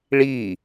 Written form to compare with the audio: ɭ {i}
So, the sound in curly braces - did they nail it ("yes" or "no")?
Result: yes